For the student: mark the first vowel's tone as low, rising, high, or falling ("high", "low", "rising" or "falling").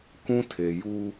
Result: high